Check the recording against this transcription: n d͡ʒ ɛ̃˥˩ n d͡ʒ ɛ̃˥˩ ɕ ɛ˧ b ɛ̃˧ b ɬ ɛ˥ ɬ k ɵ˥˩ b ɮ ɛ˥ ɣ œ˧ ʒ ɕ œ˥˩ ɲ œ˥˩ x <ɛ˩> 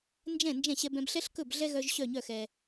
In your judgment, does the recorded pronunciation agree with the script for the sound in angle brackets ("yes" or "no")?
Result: yes